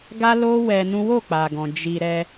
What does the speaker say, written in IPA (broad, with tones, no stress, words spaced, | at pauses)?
ɡa˦lo˦ wɛ˧nũ˦ wo˦˨k͡pa˨ɡɔ̃˨ d͡ʒi˧ ɾɛ˧